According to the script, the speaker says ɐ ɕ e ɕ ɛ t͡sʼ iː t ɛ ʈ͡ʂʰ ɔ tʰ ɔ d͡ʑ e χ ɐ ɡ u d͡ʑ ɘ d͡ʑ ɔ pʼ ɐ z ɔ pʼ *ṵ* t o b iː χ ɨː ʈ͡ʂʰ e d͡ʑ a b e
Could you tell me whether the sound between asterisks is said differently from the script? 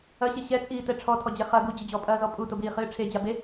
yes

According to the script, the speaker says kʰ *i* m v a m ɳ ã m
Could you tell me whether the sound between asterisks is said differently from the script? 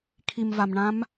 no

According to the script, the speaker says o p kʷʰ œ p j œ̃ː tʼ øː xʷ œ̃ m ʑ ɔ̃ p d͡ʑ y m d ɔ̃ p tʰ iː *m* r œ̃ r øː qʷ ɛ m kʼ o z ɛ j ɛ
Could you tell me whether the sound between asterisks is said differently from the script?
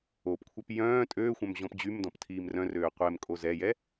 no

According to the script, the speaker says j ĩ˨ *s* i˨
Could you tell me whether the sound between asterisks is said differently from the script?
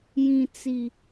yes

